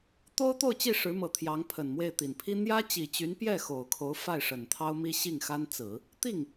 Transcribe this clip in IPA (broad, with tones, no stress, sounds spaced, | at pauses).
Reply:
t̪ o˥ ʊ̯ t̪ o˥˧ ʊ̯ t͡ɕ i˥˩ ʂ ɻ̩˧˥ m ɤ˨˩ t̪ʰ j ɑ˧˥ ŋ pʰ ə˨˩ n m w e˥˩ ɪ̯ t̪ i˨˩ n pʰ i˥ n̪ j ä˥ t͡ɕ i˨˩ t͡ɕ y˧˥ n p j ɛ˥˩ x o˨˩ ʊ̯ kʰ o˧˥ ʊ̯ f a˥˩ ɪ̯ ʂ ə˨˩ n t̪ʰ ɑ˥ ʊ̯ m i˥ ɕ i˥˩ ŋ x a˥ n t͡s ɹ̩˨˩˦ | t̪ i˥˩ ŋ